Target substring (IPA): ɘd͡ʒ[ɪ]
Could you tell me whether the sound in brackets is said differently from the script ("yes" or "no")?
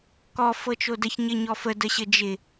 no